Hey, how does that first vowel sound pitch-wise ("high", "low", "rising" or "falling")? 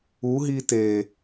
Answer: rising